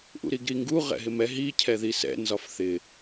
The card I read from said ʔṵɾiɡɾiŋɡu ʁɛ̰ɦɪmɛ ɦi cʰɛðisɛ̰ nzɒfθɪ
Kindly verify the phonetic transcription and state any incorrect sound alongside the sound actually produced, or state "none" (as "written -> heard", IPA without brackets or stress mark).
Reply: none